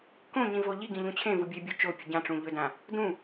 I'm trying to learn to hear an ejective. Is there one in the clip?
no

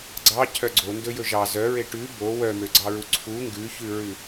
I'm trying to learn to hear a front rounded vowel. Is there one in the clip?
yes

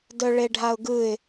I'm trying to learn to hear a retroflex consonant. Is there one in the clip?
yes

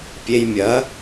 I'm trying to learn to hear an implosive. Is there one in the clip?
no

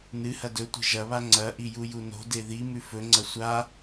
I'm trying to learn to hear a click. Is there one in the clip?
yes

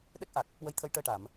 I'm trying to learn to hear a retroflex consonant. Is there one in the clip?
yes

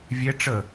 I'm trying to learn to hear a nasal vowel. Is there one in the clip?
no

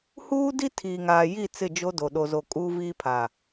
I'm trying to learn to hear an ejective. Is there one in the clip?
yes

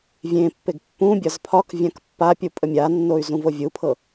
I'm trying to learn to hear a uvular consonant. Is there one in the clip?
no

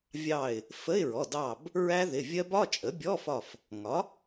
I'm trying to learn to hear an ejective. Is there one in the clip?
yes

